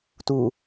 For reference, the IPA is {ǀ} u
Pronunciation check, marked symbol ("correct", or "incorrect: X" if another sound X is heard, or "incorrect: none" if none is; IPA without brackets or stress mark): incorrect: t